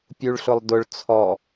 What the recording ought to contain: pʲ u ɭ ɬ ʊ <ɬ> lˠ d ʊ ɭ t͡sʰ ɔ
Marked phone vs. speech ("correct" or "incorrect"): incorrect